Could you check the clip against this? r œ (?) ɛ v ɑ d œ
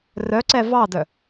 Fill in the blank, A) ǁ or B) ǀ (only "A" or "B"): B